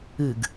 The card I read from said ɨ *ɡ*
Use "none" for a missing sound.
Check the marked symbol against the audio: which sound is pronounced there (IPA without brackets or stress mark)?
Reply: ɡ